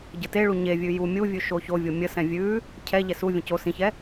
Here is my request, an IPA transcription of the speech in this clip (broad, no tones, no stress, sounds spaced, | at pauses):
ɟ ə t e ɭ u ɲ e vʲ ʉ j u mʲ u vʲ ʉ ʃ o ç o vʲ o mʲ ə s ɛ̃ vʲ ʉ | cʰ ɛ ʎ ɛ s u vʲ ə̃ c o s ĩ ç ɛ